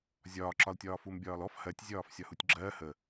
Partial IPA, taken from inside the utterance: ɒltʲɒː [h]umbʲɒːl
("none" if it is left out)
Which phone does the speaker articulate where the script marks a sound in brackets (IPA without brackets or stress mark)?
f